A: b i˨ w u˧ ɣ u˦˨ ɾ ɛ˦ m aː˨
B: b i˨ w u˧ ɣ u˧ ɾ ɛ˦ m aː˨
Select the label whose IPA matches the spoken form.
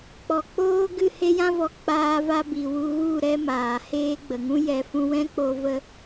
A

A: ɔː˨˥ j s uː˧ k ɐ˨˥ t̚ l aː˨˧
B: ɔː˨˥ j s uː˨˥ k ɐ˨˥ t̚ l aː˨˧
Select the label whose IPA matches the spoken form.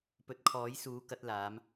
B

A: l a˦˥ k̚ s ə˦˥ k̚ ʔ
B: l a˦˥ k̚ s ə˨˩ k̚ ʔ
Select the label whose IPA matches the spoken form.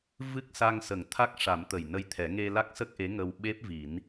A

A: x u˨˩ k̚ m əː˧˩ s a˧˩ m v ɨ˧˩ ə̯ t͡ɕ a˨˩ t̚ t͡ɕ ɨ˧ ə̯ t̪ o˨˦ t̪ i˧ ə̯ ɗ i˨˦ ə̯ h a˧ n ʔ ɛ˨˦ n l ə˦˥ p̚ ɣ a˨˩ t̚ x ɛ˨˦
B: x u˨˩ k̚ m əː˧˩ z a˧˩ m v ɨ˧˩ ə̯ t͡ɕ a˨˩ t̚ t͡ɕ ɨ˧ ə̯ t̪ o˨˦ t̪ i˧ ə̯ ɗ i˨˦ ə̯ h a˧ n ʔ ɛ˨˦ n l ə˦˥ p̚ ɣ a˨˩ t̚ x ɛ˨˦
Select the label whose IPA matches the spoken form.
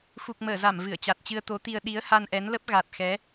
B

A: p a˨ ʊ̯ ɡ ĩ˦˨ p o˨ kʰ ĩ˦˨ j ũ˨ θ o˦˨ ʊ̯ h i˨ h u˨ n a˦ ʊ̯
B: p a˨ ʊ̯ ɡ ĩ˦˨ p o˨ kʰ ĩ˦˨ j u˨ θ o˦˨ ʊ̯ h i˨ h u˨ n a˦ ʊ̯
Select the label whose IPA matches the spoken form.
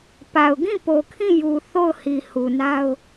B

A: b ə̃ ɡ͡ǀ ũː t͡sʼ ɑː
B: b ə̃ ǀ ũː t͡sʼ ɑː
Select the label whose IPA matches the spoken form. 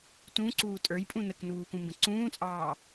B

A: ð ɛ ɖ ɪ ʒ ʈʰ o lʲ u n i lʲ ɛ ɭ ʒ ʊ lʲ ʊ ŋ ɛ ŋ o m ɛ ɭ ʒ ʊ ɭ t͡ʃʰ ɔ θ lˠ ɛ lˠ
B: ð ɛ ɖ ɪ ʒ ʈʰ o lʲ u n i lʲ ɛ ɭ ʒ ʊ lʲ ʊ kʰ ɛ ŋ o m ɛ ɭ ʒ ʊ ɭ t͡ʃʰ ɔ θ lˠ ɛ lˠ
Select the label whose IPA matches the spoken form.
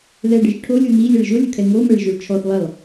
B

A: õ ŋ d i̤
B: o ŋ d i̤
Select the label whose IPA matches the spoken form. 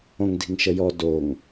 A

